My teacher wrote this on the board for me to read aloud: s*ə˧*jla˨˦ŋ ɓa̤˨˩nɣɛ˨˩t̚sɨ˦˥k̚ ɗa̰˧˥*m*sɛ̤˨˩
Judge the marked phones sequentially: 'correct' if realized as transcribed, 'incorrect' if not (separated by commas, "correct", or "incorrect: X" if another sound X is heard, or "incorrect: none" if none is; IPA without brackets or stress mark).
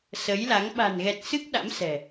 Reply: incorrect: ə˨˦, correct